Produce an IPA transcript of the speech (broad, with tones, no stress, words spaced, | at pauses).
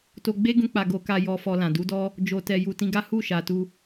to˧ ɡ͡be˦ ɡũ˦k͡pa˧ ɡo˧ka˧ jɔ˧fɔ˧lã˨ du˨˦dɔ˦ | d͡ʒo˨tɛ˨ ju˨tĩ˧ɡa˦ hu˦˨ʃa˨tu˧